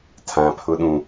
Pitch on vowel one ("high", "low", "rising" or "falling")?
low